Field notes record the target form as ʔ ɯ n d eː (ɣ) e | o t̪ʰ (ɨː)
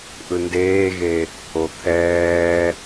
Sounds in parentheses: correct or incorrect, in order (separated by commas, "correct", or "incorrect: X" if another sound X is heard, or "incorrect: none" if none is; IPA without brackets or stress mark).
correct, incorrect: ɛː